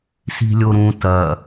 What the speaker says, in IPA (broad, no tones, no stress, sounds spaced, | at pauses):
s i̤ lʲ o ɾ ũ t ɐ